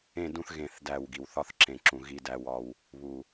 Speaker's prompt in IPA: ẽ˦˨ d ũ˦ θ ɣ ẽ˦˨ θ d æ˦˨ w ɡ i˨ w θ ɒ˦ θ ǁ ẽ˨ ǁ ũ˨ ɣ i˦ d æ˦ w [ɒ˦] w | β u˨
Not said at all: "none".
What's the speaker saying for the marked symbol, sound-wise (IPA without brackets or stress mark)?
ɒ˦